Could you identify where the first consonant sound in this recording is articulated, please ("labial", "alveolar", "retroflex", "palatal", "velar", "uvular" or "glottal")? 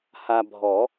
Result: glottal